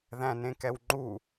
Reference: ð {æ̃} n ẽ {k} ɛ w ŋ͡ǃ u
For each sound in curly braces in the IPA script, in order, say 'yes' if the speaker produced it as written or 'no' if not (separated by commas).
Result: yes, yes